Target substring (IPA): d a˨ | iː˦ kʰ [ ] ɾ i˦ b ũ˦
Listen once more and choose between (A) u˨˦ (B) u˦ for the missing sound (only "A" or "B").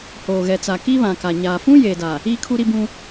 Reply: B